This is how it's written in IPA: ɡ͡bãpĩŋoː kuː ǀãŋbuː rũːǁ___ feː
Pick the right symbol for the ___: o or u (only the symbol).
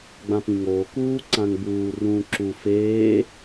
u